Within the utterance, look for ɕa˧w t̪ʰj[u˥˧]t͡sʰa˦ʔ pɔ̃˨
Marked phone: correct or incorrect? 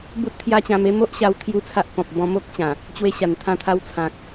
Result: correct